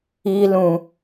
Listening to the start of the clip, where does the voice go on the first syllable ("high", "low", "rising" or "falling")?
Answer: high